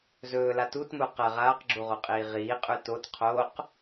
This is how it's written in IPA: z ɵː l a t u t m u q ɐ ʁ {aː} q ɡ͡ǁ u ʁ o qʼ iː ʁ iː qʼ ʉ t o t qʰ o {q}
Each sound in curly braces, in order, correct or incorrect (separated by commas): correct, correct